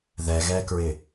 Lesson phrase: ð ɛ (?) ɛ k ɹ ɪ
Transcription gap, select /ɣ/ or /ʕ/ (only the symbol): ɣ